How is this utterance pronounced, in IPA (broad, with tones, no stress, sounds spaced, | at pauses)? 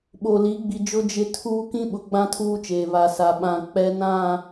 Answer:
ɓ o˨ l i˨˦ ɡ͡b i˨ d͡ʒ ʊ˦ d͡ʒ ɪ˦ tʰ uː˦ k ĩ˦ ɓ ʊ˨ ɡ͡b ã˦ tʰ uː˦ t͡ʃ eː˨ β a˨ s a˨ ɓ ã˨ k͡p ɛ˦ n ã˦˨